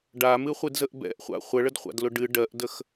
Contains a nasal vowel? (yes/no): no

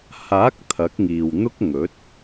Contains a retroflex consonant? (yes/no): no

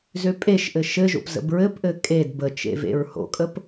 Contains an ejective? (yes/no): yes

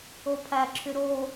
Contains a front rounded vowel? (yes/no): yes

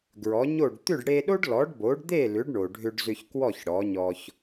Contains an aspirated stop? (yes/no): no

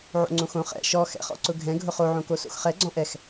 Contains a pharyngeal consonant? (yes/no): yes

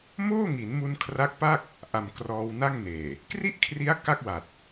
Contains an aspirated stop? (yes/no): yes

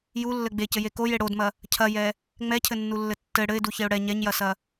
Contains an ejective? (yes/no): no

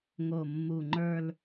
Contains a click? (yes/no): yes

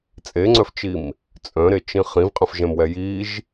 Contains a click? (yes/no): yes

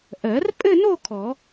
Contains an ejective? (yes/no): yes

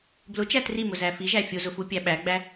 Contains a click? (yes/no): no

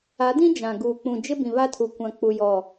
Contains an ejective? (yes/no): no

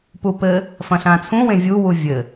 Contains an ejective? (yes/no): no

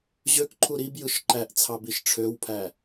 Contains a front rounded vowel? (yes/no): yes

